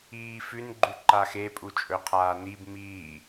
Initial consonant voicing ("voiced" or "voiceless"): voiceless